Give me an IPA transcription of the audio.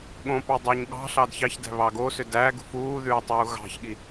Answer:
ɠ õ p ɑ dˤ œ ɲ ɠ ɑ̤ ɬ ɑ d ç ɑ ç d æ̤ β ɑ ɡ o s ø d æ ɡ ṳ f uː ð ʉː tˤ uː ɣ ɑ̤ ç ɠ i

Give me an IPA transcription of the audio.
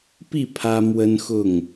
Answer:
p i˥˨ pʰ ä˦ m w ə˦ n x ʊ˥˨ ŋ

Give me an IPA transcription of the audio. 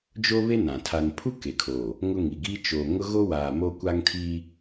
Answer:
d͡ʒ o˦ β e˦ n ã˨ tʰ a˨ n pʰ u˦ k e˨ kʰ o˨ | ŋ ʊ˦ ŋ i˨ ɡ i˦ t͡ʃ oː˨ ŋ ʊ˦ ɣ o˦ w aː˨ m o˦ kʷ a˦ ŋ tʰ i˦

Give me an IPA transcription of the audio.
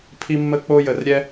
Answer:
pʰ i˦ mː ə˦ k͡p o˦ j ə˨ r ɾʲ ɛ˦

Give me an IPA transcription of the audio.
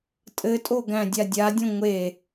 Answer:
tʼ ɘ tʼ o ɡ æ̃ dʲ a dʲ a dʲ õ ŋʷ e

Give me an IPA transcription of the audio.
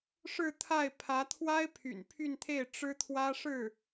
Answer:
ʂ ɻ̩˥˧ t̪ʰ a˥˩ ɪ̯ pʰ ä˧˥ t̪ʰ w a˥ ɪ̯ pʰ y̰˨˩ n pʰ y˥˧ n t̪ʰ e˥˩ ɪ̯ ʈ͡ʂ ɻ̩˥ t̪ʰ w ä˥ ʂ ɻ̩˥˩

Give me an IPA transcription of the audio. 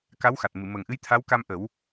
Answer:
k a˧˥ w x a˨˩ t̚ m ɨ˨˩˨ m ə˨˩ ŋ ʔ ɨ˧˥ j t̪ʰ a˧˥ w k a˧ m ʔ ə˨˩˦ w

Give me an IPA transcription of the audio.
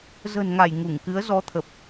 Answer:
z ə̤˨˩ n ŋ a˧˩ j ŋ u˧˩ ŋ k ɨ˨˦ ə̯ z ɔ˨˦ t̪ʰ ə˨˩ p̚

